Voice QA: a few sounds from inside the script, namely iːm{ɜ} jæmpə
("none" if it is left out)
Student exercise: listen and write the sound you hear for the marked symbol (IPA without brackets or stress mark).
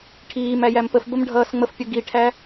æ